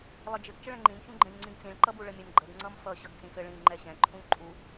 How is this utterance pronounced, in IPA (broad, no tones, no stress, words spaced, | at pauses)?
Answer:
lˠɘd͡ʒɘɡ t͡ʃəɭɛ̃ŋ͡ǃĩm çũɡ͡ǃɛ̃ʎŋ͡ǀĩɡt͡sĩɭ ǃʌbuɭəmʲəm ɡ͡ǃəɡ ŋ͡ǀʌmfʌ ɕʌɡt͡sĩfɘ ɭĩ ŋ͡ǃɛɕɛ̃ ǃʰũʎǃʼu